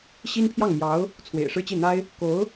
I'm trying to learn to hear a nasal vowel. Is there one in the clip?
no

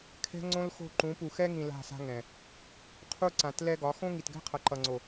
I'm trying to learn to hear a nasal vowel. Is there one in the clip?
yes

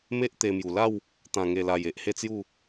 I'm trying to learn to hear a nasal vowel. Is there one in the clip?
yes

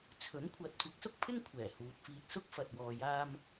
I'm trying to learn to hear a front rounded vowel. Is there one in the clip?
no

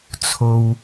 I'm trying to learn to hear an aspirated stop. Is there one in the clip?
yes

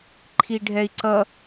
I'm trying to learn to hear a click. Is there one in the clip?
yes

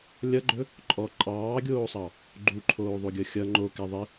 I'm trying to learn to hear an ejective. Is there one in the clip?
yes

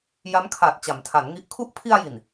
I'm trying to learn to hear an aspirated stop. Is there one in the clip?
yes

